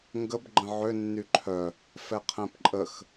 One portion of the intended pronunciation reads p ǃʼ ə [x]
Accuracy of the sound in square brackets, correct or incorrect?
correct